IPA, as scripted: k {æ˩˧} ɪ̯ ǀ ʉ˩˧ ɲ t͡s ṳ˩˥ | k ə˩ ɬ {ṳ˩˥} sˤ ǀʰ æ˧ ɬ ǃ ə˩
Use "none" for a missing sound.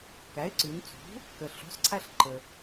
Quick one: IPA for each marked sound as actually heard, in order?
æ˩˥, ṳ˩˥

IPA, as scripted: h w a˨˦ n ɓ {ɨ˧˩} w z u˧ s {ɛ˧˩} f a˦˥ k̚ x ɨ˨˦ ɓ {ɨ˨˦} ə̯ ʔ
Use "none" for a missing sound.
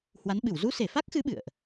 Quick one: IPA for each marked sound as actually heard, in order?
ɨ˧˩, e˧˩, ɨ̰˧˨

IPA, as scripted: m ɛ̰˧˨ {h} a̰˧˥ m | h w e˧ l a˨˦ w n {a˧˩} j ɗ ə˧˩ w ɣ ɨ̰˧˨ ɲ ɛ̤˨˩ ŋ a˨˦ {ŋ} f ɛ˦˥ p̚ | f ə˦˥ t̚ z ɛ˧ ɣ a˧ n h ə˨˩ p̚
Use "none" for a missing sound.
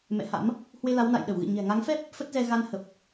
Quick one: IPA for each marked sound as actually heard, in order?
h, a̰˧˨, ŋ

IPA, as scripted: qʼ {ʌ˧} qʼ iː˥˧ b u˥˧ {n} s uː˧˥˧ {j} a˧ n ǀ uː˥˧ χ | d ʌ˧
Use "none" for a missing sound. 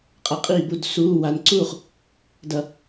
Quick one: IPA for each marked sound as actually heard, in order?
ʌ˧, d, w

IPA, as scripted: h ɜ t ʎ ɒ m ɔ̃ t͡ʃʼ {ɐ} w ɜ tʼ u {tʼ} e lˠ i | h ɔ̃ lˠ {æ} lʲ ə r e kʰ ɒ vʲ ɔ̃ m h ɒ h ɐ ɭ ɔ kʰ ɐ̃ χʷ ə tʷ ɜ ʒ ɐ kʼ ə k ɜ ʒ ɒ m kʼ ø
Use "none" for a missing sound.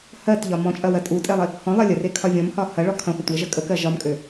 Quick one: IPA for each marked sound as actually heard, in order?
ɐ, tʼ, ɜ

